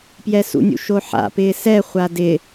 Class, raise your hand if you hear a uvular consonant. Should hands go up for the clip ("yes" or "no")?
yes